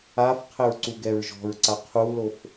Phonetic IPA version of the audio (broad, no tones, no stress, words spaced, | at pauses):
afqʰɘɹ ǀuɡɛɹʒɔ̤ɹǀa qʰulof